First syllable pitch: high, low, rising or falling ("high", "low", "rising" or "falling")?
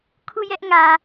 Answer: falling